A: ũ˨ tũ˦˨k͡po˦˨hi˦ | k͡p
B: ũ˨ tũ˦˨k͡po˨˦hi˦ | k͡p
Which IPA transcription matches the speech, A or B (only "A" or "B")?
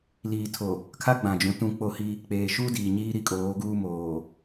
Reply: A